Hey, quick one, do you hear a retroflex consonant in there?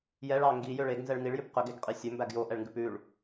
yes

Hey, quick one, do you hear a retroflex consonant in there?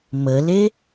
no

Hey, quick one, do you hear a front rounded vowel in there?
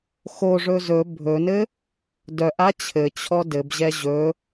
yes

